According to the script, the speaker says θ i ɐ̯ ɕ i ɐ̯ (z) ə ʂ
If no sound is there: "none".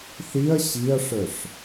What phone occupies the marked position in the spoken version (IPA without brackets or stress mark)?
ʂ